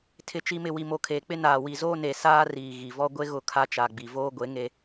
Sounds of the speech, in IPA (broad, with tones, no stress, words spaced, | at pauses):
tʰɪ˨t͡ʃi˨mɪ˨ wi˨mo˨kʰeː˨k͡pɪ˦ naː˨ wi˨zoː˦ne˨ saː˦ riː˨ ɣi˨vɔ˦ ɡʷe˦ɣʊ˦˨ kʰa˦t͡ʃa˨ɡ͡bi˨ voː˦ɡʷe˨˦ŋe˦